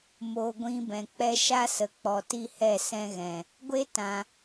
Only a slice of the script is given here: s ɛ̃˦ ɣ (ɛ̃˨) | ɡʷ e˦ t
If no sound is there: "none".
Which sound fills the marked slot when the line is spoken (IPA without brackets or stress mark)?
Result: ɛ̃˨